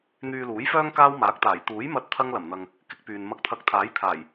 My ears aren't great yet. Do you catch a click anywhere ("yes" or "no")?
no